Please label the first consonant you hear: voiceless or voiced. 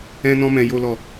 voiced